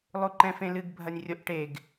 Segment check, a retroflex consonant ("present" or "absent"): present